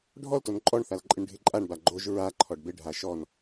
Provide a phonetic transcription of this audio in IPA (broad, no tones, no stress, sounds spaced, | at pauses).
ɖʱ ɔ l t o n ǃʼ ɔ ɳ θ a l ǃʼ ɪ ɳ ɖʱ ɪ ǃʼ a ɳ b a ɡ͡ǃ o ʒ ɹ a ǃʰ ɔ ɖ b ɪ ɖʱ a ʃ ɔ n